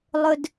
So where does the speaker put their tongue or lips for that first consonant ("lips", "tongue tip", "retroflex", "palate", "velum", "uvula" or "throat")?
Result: tongue tip